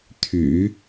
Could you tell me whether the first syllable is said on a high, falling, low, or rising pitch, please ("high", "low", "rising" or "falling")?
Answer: low